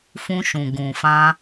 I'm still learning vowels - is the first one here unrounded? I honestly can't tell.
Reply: no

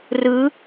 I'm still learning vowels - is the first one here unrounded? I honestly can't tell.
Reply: yes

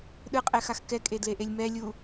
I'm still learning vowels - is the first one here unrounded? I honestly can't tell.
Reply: yes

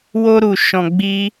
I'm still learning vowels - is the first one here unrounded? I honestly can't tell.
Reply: no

